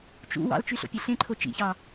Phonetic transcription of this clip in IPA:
t͡ʃ ṵ w ɑ̰ l t͡ʃ y ɬ o̰ pʲ e ɬ ẽ ǃʰ o t͡ʃ ḭ ç ɑ

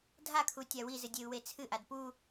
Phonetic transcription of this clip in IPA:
dʱ a kʰ u tʲ a w i z ɨ dʲ e u̯ w e t͡sʰ ɨ ʔ a d p u

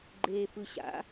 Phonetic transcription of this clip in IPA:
ɡ͡ǃ eː f ɯ ɕ a̰

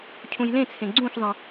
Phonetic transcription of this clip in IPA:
cʰ ũ j l ẽ t͡sʰ ẽ ɡ͡ǀ ũ ç zˤ ə̃

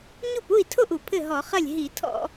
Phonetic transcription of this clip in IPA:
ɲ u˥˩ p u˥˩ i̯ tʰ o˥˩ ʔ u˧˩˧ pʰ ɘ˥˩ ɦ ɔ˧˩˧ χ ɐ˥˩ lʲ ɦ i˧˩˧ tʰ ɔ̰˧˩˧

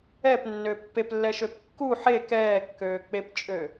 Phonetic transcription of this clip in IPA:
ɛ p nː ø pː e p lː ɛ ʃ ø p kː u ħ e k ɛː kː øː k͡p e p t͡ʃʼ ø

